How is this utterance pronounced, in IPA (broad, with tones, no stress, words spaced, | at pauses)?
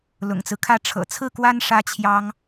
lʊ̰˨˩ŋt͡sɹ̩˦kʰä˥˩ ʈ͡ʂʰɤ̰˨˩t͡sʰɹ̩˥˩kwa˥n ʂä˥t͡ɕʰjɑ˥ŋ